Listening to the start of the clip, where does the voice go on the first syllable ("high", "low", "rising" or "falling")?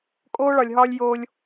high